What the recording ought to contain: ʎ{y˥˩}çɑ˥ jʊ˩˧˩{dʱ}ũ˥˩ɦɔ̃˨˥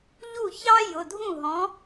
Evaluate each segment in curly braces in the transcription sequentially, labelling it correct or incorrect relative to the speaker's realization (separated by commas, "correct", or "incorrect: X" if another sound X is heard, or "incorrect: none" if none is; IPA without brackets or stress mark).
incorrect: u˥˩, correct